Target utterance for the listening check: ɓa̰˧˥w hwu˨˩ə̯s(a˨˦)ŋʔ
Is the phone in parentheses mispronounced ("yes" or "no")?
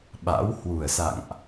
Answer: yes